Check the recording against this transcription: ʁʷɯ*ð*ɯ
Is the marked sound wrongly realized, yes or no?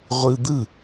yes